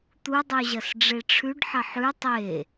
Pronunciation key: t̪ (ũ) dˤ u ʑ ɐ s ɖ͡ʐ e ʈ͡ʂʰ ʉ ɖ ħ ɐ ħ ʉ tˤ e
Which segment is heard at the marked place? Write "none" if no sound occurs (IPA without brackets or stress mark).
u